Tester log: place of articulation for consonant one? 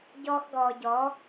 palatal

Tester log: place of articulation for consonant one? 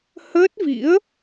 glottal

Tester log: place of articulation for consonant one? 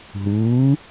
glottal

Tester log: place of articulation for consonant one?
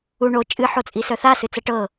retroflex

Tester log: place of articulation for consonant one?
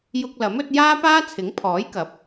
palatal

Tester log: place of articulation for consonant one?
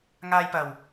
velar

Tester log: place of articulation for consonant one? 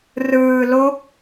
alveolar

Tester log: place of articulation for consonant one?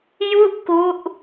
palatal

